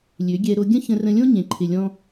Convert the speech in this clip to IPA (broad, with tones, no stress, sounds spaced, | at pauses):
lʲ ø˨˦ ɡʲ ɛ˧ ɾ o˧ ɡʲ ə̃˦ ç ə̃˧ r ə̃˧ lʲ õ˦ ɲ ẽ˨ ǃʰ ɪ˨ lʲ ɔ̃˧